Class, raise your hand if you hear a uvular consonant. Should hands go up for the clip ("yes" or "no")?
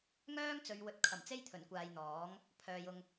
no